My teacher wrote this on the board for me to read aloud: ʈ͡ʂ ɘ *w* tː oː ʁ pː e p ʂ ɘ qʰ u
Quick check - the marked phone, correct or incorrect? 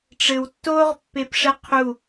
correct